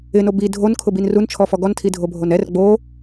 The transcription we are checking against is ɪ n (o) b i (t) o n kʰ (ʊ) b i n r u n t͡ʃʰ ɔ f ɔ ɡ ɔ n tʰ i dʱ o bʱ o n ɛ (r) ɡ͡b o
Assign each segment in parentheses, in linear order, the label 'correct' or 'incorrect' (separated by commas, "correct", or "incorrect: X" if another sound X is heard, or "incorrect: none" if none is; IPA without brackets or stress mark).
correct, incorrect: dʱ, correct, correct